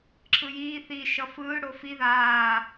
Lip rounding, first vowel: unrounded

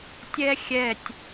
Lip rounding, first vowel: unrounded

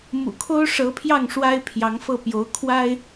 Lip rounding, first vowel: rounded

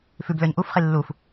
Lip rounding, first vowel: rounded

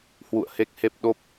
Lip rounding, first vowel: rounded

